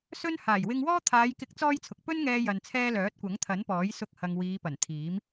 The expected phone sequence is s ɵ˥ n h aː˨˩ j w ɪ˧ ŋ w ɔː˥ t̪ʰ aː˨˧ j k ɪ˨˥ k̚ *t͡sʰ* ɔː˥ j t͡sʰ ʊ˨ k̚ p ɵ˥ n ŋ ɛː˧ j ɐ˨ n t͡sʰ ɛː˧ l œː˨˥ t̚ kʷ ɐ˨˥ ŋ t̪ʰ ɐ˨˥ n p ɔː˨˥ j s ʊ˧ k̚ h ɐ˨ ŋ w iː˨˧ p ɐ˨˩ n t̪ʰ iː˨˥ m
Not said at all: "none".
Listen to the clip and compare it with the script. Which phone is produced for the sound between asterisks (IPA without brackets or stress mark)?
t͡s